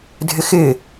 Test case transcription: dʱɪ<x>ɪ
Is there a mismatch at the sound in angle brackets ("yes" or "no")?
no